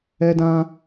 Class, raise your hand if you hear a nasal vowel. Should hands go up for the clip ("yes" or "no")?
yes